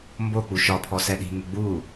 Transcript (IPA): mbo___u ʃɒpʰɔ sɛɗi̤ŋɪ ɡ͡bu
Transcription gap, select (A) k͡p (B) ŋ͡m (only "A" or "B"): A